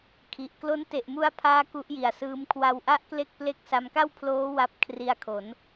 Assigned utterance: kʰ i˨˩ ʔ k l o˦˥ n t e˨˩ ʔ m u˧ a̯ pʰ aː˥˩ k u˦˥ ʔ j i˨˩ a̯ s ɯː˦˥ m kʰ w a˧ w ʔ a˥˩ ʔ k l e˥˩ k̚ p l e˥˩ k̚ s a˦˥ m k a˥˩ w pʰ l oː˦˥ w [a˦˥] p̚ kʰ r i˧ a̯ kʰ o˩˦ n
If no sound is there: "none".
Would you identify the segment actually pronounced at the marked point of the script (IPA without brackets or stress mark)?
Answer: a˦˥